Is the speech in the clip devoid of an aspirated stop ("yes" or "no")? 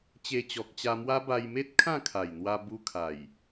no